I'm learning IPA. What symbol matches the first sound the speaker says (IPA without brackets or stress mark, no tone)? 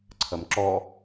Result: ǀʰ